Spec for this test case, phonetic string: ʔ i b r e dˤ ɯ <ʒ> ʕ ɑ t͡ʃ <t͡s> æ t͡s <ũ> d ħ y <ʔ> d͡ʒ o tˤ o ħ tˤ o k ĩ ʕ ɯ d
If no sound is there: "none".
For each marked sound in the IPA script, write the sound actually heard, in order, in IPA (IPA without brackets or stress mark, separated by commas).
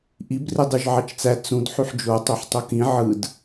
ʒ, t͡s, ũ, ħ